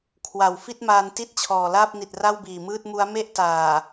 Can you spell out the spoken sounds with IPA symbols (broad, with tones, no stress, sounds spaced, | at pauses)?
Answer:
kʰ w a˨˩ w f i˥˩ t̚ m aː˧ n t i˥˩ t̚ t͡ɕʰ ɔː˨˩ l aː˥˩ p̚ n i˨˩ t̚ r a˥˩ w b iː˨˩ m ɯː˥˩ t̚ m u˦˥ a̯ m e˥˩ ʔ t aː˨˩